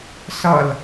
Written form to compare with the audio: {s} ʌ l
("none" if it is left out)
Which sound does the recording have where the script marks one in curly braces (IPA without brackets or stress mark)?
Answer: s